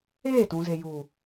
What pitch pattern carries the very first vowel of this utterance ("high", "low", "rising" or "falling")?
falling